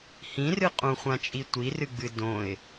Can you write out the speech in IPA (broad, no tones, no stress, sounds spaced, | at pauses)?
h ĩ r ɨ qʼ ũ χʷ ã t͡ʃʼ i tʷ i r ɨ ɡ͡b ɨ d õ ɪ̯